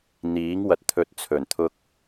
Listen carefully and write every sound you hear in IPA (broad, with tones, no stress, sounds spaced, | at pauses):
n̪ iː˨˥ ŋ w ɐ˨ t̚ t̪ʰ ɵ˨ t̚ t͡sʰ ɵ˨˩ n t̪ʰ ʊ˧ k̚